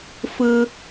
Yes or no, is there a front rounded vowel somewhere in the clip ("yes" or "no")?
no